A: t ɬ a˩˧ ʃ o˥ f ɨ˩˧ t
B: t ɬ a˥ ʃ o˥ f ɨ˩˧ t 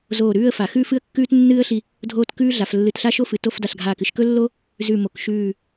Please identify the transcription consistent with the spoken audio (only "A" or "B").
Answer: B